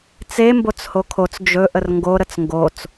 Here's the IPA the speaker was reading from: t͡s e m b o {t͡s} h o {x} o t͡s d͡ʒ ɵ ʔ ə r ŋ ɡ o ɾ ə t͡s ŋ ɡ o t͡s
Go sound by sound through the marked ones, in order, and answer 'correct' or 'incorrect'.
correct, incorrect

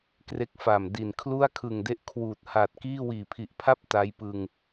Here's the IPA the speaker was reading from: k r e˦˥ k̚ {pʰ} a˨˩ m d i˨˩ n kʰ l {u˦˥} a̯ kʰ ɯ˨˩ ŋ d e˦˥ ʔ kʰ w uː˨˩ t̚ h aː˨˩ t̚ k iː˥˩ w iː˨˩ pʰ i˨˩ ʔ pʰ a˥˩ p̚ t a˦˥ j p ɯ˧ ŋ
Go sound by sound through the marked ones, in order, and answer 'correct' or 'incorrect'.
incorrect, incorrect

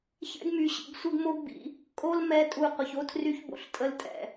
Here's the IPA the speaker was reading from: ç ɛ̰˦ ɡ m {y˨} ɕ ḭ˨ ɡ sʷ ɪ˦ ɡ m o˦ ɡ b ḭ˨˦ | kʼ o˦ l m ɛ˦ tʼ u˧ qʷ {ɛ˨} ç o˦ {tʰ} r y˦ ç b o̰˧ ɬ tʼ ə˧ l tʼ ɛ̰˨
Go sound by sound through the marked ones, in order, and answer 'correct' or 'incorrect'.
correct, incorrect, correct

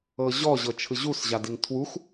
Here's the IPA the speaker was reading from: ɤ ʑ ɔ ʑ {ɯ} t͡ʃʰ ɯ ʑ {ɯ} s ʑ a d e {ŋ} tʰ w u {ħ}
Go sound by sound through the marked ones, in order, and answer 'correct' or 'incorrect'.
incorrect, incorrect, correct, incorrect

